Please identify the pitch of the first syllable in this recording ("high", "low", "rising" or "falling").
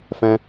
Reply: high